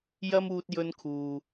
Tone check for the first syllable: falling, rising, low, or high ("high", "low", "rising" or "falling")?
high